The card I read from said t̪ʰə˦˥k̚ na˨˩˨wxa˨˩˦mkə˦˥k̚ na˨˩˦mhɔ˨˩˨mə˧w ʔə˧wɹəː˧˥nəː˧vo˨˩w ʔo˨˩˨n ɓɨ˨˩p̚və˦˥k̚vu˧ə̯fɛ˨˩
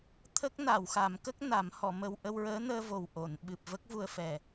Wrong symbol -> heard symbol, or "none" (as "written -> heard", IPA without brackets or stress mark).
none